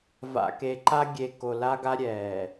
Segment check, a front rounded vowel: absent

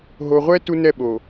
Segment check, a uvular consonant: present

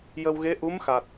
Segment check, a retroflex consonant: absent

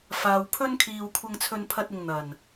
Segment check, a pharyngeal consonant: absent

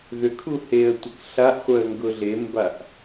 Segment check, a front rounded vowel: present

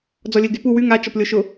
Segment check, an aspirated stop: absent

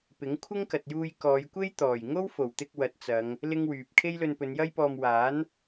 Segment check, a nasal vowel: absent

